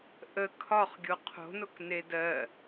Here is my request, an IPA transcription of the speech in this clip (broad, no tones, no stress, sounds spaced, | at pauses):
ʔ ə kʰ ɒ χ ɡʲ o qʰ o̤ n o k n e d ɜ